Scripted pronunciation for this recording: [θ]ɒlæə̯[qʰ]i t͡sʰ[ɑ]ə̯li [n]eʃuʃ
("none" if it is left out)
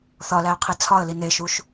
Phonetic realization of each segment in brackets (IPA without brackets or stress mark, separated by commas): θ, qʰ, ɒ, n